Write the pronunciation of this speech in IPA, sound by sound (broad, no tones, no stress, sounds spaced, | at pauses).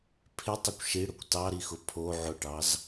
pʰ ɪ tˤ ʊ kʷ ʃ i ɽ ʊ kʷ t ɑ ɾ i x ʊ pʰ o ʕ ʊ ʈ ɑ z